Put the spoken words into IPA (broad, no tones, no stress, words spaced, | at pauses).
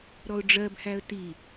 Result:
ɾɔʊ̯ɖ͡ʐɜbhæə̯ ti